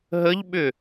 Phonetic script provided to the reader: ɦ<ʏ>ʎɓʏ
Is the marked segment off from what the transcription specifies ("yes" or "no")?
yes